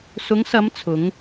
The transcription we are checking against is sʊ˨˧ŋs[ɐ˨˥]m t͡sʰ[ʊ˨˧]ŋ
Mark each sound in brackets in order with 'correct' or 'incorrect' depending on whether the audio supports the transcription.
incorrect: ɐ˨˧, correct

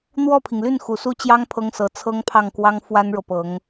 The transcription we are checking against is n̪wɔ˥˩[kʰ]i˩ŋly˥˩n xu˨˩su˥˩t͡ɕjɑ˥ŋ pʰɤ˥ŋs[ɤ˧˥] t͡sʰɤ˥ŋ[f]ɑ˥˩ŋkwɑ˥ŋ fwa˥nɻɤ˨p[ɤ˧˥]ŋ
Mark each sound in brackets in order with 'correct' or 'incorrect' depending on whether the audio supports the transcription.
incorrect: pʰ, correct, incorrect: pʰ, correct

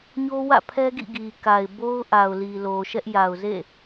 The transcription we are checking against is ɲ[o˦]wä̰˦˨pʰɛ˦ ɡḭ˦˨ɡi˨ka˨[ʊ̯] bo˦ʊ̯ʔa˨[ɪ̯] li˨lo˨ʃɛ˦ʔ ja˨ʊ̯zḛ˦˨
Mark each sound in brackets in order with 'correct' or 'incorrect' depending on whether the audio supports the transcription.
correct, incorrect: ɪ̯, incorrect: ʊ̯

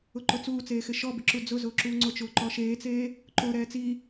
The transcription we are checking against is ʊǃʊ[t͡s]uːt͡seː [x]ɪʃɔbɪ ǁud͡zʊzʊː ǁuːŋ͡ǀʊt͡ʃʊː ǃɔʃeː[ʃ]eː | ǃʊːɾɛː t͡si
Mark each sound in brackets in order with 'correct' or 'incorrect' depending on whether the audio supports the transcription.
correct, correct, incorrect: t͡s

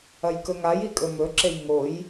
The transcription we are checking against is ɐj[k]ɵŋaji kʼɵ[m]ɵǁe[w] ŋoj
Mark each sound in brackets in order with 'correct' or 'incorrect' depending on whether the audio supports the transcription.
correct, correct, incorrect: j

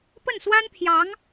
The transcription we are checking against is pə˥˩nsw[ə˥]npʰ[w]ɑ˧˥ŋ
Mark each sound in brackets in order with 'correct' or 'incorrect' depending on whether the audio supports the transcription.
incorrect: a˥, incorrect: j

